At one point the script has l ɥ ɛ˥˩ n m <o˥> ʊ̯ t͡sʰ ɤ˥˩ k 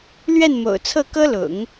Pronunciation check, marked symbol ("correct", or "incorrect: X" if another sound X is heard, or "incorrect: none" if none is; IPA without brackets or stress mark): incorrect: o̰˨˩